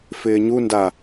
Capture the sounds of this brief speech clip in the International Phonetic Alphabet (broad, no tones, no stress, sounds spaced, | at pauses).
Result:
f ɪː ɲ u n d a